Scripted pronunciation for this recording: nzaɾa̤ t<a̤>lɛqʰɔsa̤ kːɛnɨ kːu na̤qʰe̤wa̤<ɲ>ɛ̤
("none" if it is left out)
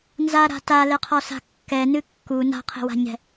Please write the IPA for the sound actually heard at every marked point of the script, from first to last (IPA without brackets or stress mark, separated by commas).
a, ɲ